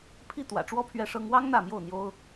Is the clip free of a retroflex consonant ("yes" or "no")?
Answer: no